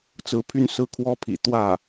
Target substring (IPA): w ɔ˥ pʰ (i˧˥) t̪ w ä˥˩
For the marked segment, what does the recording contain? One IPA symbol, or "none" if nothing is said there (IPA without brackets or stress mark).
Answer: ḭ˨˩